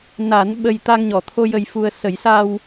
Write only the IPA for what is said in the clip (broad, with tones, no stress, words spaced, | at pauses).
na˨˩˦n ɓə˧j t̪a˧ŋɲɔ˨˩˨t̪ʰo˧ jə˧jfu˧ə̯ sə˨˩˦jsa˧w